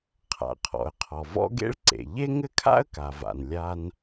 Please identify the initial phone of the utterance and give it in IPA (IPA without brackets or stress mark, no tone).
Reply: qʰ